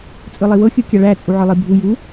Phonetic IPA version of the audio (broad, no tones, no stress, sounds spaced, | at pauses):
t͡sʼ ɯ lˠ i w ɤ xʲ ɯ kʲ a ɭ æ t͡sʼ u ʕ ɯ lˠ i bʱ u j u